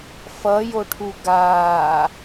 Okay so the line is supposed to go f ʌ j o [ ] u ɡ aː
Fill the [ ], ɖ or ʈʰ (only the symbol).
ʈʰ